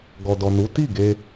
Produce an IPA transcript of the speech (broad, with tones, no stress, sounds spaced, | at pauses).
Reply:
ɡ ɔ˨ d ɔ˨ n u˨˦ t i˦˨ ɡ e˧